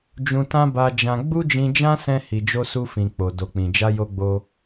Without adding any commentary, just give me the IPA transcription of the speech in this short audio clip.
d͡ʒũ˧tã˦ba˧d͡ʒã˧ ɡ͡bu˦d͡ʒĩ˧d͡ʒã˦sɛ̃˧ hi˨d͡ʒo˧ su˧fĩ˨k͡po˨ do˨k͡pĩ˨d͡ʒa˧ jo˧ɡ͡bo˧

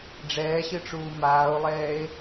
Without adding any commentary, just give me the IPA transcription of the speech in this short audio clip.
ɖ͡ʐɛːɕɨʈ͡ʂuː maːo̯lˠɛːe̯

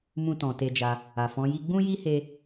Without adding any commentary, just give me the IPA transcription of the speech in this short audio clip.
mũ˧tɔ̃˨ te˧d͡ʒa˧ | a˨fɔ̃˨˦ji˦ ɡ͡bũ˦ji˦he˧

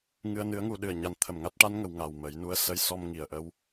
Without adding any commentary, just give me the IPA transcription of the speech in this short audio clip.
ŋɨ˧ə̯nɨ˧˥ə̯ŋu˧ɗɨ˨˩ə̯ ɲa˨˩n t̪ʰə˨˩mŋa˦˥t̚ʈa˧˥nŋə˨˩˨w ŋa˨˩wmə˨˩˦jnu˧˥ə̯ sə˧jsɔ˧mŋi˨˩˨ə̯ʔə˧˥w

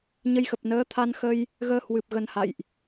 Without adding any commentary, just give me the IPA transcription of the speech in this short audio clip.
ɲə˧jxə˨˩p̚ nəː˨˦t̪ʰa˧nxə˧j | ɣəː˧hwɨ˨˩p̚ ɣə˧nha̰˧˨jʔ

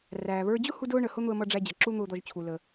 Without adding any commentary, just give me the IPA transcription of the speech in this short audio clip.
ræː˩βə˞˧d͡ʑʊ˥ hu˥dʊː˥ɳə˩ hʊ˥n̪ʊ˧ə̯mʌ˧ ɖ͡ʐæ˧d͡ʑʌ˩ ǁu˥n̪ʊː˧d̪ɔ˧ʒt͡ɕʰu˩ lə˩

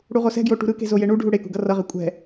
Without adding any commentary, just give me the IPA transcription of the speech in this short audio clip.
ɽuʁosɛ̤ɡjo ʈṳɾɯke̤ zojeɳuɖʱu ɽekṳ ɡʌrʌʁe kʷʼɛ̤

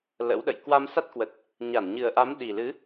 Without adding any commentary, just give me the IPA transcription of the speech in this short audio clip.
lə̰˧˥wɗə̰˧˨j kwa˧msa˦˥t̚ kwə˨˩t̚ | ɲa˧˩nɲɨ˨˩ə̯ʔa˨˦m ɗi˨˩lɨ˨˦

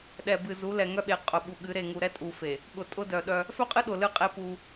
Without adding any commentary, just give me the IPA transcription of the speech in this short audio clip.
ɗɛ˨bɨ˨zu˨˦lɛ˨ ŋœ˦ɓe˨ qʼʊ˨ ɓu˨ɠɨ˨˦ ɾe˦˨ŋu˨ ɾɛ˦tʼu˨fe˨ | ɠʊ˨tʼʊ˦dœ˨ɗœ˦ | fœ˦qʼɨ˦ɗʊ˨ lɨ˦˨qʼe˦ pu˦

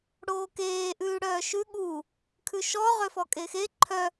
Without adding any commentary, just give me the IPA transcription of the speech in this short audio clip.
ɽoːkeː ʔʉːɽœːʃʉ ɠu | kʰʉʃɔ ʁøfɔkʼexe ǃʰœ

